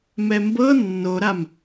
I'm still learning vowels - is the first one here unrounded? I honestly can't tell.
yes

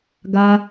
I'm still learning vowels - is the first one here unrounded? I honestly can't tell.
yes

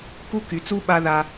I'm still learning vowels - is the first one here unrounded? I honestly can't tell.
no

